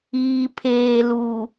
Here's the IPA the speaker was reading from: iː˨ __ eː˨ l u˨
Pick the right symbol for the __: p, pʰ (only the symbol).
pʰ